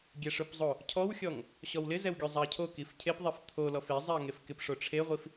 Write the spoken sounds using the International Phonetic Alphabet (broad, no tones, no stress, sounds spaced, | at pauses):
ɡʲ ɛ ʂ ʊ p zˤ o | cʰ ɔ w xʲ ɔ ŋ | ɕ ɔ w l ɪ z ɛ w ɡʲ o zˤ a ɐ̯ cʰ o k i f cʰ e p ðˤ e f t̪ʰ o l ɔ f e zˤ i ɐ̯ ŋ e f k ɪ p ʂ o ʈ͡ʂʰ e ʁʷ i f